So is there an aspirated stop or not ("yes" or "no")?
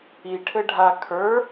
yes